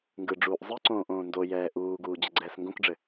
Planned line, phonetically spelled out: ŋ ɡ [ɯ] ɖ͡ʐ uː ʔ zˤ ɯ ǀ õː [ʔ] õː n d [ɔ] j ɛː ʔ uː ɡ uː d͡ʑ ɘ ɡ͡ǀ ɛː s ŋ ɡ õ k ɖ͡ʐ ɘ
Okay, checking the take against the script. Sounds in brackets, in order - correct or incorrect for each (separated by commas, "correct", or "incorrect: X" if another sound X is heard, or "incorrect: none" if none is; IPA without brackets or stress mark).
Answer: correct, correct, incorrect: o